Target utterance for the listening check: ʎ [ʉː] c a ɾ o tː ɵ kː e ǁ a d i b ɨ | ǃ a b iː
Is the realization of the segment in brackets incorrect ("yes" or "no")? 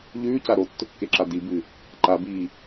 no